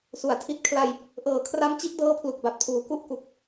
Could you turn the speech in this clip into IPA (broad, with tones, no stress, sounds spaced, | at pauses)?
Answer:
s u˨˩ a̯ tʰ i˥˩ t̚ kʰ l a˧ j | ʔ ɤː˨˩ kʰ r a˦˥ m t͡ɕ i˦˥ ʔ d ɤː˦˥ pʰ l u˨˩ k̚ b a˨˩ p̚ tʰ uː˩˦ k u˦˥ ʔ k u˨˩ k̚